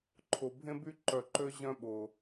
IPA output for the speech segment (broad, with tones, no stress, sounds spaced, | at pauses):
ǃʰ ʊ˨ bʱ ẽ˦ b y˦ ǃ œ˨ ǃ ø˦ ʑ œ̃˦ ɓ ʊ˨